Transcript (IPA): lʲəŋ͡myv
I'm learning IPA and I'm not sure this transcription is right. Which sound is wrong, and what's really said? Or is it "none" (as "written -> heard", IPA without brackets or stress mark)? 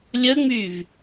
none